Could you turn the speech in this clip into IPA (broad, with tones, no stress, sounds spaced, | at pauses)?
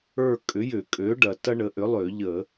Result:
ə˞˦˨ kʼ ʏ˩˥ j ʏ˧˩˧ kʼ ø˩˥ ɖ ɐ˨˩ t ɐ˦ ɳ ə˩˥ ʔ ʏ˩˥ lˠ ø˧˩˧ ʎ ə˧˩˧